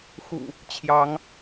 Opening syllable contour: low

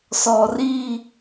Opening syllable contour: low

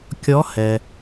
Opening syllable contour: rising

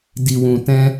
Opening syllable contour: low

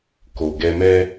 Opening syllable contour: low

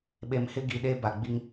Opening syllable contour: low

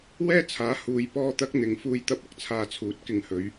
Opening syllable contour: high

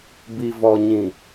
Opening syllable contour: low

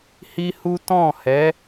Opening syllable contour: high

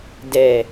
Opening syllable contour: low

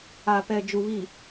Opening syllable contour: low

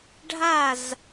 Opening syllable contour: falling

